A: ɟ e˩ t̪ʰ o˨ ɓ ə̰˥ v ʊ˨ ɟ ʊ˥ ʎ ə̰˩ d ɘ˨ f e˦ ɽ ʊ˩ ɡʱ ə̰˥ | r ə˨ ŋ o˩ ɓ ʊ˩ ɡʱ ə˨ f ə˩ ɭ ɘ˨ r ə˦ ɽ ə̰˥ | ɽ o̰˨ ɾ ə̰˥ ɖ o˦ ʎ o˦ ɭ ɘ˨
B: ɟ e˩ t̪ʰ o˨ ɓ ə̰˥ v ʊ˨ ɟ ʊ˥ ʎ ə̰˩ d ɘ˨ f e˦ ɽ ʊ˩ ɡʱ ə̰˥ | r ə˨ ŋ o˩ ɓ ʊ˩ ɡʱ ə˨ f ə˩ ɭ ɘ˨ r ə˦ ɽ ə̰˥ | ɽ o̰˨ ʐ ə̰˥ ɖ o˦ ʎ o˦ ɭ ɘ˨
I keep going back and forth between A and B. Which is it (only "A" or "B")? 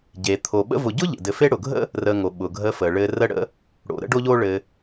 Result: A